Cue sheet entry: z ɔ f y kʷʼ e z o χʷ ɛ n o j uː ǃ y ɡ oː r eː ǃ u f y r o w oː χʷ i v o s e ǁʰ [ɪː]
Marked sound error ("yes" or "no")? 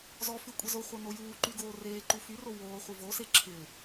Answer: no